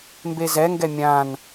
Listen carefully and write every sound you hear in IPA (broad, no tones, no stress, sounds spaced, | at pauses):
m b e z ɛ ŋ ɡ ɛ mʲ ã n